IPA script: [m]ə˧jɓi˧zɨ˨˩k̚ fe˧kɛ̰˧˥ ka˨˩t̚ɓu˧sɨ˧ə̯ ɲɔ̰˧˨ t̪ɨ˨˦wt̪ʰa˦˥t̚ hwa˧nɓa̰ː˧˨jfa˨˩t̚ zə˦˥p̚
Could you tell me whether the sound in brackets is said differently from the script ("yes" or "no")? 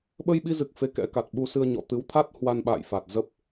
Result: yes